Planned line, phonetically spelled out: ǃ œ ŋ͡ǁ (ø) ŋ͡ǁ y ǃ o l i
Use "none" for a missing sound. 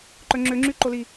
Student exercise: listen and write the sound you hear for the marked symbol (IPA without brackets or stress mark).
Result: ø